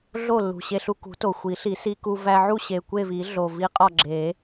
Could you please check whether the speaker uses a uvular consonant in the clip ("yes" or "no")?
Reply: yes